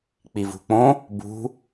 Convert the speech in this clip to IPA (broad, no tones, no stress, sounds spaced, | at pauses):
k͡p i v ṳ k͡p õ | b ṳ